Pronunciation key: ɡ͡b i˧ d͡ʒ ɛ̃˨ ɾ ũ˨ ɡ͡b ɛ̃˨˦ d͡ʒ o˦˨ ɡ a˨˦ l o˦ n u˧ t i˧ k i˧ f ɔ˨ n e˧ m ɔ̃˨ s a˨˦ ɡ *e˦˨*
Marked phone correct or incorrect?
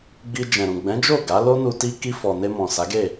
correct